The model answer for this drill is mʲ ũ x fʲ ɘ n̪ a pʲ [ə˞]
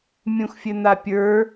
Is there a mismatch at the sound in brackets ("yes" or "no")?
no